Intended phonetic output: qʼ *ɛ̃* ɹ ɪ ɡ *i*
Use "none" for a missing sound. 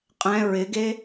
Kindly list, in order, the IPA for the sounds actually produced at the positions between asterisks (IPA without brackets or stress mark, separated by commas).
ɛ̃, e